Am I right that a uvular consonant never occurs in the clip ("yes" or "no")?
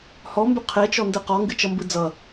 no